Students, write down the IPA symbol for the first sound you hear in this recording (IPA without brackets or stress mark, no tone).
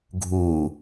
ɡʱ